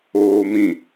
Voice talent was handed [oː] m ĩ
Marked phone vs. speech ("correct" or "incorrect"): correct